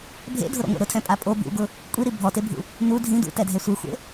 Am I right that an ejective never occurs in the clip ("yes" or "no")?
no